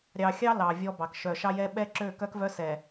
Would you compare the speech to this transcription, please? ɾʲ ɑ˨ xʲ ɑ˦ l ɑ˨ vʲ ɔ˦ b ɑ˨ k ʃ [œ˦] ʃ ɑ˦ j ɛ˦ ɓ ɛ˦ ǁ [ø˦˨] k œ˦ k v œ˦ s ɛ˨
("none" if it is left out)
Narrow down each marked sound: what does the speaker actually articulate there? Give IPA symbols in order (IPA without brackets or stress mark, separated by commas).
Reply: œ˨, ø˦˨